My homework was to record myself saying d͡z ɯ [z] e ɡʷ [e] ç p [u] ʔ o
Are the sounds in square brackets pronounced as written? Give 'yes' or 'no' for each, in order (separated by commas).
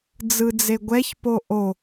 no, no, no